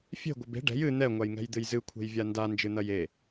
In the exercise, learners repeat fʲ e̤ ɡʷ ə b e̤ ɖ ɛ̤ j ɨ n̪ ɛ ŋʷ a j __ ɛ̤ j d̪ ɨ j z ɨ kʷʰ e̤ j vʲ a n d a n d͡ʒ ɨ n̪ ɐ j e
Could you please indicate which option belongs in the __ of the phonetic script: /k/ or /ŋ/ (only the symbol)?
ŋ